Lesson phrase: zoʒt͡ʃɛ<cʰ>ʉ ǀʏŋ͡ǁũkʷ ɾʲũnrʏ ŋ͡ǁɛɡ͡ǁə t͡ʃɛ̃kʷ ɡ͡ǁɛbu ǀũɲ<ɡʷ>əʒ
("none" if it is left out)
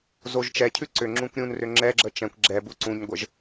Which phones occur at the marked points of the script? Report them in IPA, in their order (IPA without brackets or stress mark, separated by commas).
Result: cʰ, ɡʷ